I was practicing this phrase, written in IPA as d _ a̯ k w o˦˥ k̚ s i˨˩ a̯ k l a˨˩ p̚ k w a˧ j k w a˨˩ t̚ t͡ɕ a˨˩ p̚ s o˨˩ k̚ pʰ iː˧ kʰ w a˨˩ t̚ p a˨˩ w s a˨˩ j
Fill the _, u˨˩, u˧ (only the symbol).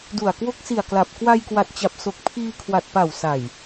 u˨˩